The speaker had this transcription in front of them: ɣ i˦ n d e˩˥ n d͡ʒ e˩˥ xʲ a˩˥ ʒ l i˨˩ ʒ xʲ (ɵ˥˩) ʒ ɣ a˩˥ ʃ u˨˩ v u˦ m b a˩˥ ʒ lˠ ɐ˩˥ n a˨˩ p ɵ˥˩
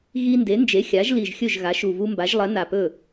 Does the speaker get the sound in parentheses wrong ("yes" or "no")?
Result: no